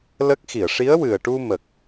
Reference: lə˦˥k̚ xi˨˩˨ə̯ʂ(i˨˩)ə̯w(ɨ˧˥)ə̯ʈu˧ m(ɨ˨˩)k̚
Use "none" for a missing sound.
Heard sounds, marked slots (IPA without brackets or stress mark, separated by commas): i˧˥, ɨ˨˩, ə˨˩